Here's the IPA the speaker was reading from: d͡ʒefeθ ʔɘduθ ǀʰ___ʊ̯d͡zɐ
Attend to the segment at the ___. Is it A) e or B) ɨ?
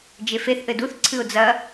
B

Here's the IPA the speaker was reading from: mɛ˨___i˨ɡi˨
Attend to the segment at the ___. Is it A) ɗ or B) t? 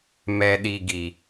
A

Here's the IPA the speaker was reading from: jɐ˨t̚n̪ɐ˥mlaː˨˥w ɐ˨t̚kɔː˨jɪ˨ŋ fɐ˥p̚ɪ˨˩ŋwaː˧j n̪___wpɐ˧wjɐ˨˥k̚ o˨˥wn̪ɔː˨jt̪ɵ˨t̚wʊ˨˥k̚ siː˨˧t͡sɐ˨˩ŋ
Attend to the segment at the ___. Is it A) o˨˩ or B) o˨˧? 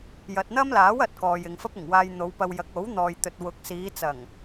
B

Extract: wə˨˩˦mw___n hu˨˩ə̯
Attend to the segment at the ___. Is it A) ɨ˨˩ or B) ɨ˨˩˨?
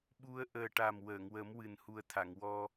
A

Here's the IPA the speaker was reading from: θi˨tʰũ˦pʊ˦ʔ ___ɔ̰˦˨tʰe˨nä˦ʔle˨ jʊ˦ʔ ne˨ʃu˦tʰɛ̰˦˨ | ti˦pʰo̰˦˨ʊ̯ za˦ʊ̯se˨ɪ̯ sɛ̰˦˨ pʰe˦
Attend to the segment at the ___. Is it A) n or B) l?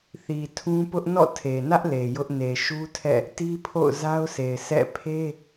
A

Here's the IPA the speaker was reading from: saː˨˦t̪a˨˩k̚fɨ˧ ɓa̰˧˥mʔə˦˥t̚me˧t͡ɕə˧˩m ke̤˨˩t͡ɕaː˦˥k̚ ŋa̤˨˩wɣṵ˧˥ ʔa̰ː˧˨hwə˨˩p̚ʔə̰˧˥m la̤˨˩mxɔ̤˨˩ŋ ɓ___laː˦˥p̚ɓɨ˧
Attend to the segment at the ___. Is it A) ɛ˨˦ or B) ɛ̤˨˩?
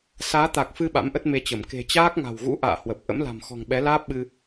A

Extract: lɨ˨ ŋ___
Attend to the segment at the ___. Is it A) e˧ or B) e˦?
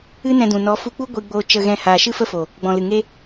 B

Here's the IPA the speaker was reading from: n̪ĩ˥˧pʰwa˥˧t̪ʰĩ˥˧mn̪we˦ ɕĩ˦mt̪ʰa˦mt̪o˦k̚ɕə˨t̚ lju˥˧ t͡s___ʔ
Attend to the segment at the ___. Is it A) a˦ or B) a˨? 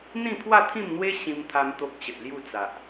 B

